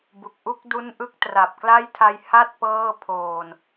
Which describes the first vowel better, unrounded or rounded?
rounded